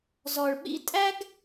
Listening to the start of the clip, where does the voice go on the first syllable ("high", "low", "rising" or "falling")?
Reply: low